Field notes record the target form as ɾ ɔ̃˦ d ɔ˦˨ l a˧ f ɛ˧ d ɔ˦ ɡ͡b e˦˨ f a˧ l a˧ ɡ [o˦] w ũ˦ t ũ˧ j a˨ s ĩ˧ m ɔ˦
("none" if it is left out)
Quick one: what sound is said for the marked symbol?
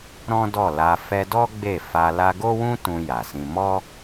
o˦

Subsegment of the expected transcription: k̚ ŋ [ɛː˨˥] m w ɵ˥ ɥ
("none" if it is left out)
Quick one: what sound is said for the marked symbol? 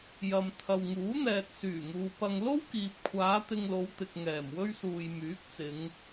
ɛː˨˩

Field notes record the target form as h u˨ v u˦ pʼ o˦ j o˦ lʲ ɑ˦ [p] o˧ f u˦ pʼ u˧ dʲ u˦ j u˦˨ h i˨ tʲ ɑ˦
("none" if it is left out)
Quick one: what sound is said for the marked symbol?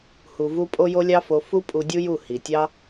f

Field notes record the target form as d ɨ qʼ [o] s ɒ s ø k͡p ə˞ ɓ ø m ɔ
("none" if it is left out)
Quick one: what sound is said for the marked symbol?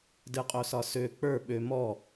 o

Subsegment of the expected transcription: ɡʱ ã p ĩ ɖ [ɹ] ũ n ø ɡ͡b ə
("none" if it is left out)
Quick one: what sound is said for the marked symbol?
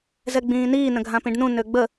n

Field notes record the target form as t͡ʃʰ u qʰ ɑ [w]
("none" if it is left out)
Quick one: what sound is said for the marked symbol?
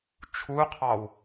w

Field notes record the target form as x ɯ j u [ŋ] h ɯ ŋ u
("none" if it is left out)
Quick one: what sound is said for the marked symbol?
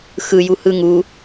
none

